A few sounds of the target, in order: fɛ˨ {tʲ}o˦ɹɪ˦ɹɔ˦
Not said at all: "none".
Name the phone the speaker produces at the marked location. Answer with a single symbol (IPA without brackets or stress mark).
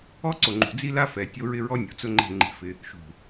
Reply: tʲ